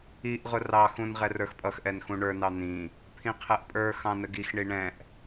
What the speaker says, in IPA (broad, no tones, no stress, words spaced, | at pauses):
iʔʁʊ rɑxũn ʁɛrə˞xpʼʌxʔɛn xũɳə˞nɑ n̪ĩ | pʰĩqʰɛʔpʼə˞xɑ̃ nəɡixɳi ɳɛ̃ʔ